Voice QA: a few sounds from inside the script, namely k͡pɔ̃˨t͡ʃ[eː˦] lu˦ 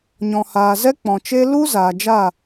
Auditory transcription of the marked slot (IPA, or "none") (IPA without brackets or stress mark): e˦